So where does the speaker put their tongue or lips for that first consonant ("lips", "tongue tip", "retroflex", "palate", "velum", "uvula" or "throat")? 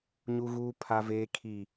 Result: palate